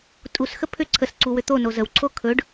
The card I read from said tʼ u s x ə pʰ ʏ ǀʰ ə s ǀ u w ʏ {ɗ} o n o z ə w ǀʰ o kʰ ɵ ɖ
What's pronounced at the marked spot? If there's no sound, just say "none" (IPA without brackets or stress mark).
t̪